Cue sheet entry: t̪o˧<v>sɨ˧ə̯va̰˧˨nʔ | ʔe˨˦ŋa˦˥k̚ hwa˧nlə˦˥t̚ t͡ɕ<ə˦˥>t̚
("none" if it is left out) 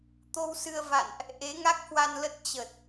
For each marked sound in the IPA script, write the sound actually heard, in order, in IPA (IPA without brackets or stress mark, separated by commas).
w, ə˨˩